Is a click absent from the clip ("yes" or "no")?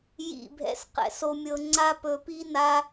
no